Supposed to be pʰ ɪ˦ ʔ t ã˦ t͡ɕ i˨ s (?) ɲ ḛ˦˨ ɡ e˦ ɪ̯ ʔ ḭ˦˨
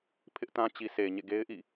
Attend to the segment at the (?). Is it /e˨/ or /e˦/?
e˨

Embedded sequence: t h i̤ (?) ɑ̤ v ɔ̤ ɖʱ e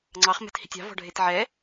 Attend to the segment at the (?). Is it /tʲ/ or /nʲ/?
tʲ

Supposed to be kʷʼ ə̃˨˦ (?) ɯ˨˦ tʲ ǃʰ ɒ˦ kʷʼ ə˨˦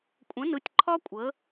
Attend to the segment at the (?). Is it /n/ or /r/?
n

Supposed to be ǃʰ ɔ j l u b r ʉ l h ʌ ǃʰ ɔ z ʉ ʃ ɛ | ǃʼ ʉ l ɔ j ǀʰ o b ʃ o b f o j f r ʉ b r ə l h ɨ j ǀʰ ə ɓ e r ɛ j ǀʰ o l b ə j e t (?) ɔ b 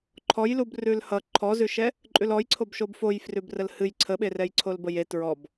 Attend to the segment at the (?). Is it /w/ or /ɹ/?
ɹ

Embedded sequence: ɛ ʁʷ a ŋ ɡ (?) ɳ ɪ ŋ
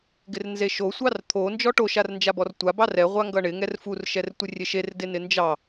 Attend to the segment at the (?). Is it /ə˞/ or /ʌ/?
ʌ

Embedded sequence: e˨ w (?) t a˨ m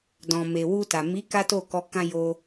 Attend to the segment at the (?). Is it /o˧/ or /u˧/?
u˧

